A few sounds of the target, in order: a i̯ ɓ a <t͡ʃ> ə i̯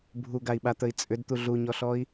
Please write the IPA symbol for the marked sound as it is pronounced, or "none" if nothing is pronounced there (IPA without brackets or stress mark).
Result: t̪